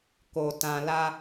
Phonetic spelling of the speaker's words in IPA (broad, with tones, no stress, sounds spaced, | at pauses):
k o˨ t ã˨ l a˧